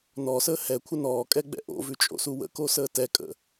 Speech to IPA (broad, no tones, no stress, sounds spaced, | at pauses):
n ɔ s əː h ɛ kʷʰ ə n ɔː kʼ ɛ ɡ͡b ɛ̰ ʔ o̰ v ʉ t͡ʃʼ o̰ s u w ə̰ k o s əː t ɛ kʼ ə̰